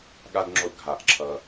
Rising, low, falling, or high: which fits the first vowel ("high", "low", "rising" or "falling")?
high